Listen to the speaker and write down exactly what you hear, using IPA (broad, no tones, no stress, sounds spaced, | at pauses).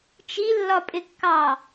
t͡ʃ i lː ɒ pʼ ɪ kː ɑ